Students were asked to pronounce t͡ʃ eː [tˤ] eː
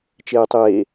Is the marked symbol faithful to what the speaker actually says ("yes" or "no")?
yes